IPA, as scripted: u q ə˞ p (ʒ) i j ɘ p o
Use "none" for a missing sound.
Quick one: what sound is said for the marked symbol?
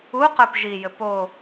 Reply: ʒ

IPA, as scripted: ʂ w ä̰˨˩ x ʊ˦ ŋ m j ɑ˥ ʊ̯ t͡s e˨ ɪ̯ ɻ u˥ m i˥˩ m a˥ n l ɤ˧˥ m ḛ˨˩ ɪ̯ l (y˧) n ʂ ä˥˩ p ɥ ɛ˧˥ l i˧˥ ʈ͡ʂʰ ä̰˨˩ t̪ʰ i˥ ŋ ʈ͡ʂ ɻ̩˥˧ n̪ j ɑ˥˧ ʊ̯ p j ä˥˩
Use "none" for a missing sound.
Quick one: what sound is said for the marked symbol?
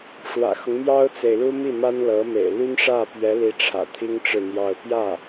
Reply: y˥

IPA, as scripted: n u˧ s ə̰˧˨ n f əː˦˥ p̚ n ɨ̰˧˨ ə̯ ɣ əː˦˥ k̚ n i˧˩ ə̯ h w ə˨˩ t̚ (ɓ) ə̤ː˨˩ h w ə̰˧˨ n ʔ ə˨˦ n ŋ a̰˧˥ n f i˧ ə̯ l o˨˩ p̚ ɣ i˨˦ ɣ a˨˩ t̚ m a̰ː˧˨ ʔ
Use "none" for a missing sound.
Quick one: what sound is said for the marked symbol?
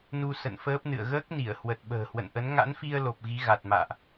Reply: ɓ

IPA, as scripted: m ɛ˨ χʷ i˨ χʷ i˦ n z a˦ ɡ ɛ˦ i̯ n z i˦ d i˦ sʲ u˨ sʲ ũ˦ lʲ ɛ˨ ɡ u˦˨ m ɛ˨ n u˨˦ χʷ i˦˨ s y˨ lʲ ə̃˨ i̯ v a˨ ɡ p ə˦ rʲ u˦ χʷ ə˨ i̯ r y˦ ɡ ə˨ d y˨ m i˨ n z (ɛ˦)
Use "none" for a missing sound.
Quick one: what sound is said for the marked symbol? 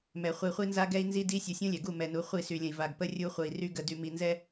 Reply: ɛ˦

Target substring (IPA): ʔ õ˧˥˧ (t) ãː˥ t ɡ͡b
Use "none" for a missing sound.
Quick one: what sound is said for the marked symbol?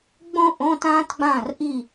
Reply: t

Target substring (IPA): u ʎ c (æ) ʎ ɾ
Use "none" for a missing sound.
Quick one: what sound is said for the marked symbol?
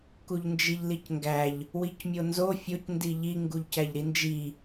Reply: æ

